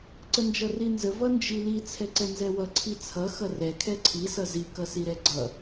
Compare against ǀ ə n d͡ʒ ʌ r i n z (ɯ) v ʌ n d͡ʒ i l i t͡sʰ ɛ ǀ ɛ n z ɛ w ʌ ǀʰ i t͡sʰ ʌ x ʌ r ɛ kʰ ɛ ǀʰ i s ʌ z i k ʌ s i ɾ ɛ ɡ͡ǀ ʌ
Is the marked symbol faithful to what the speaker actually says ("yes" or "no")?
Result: no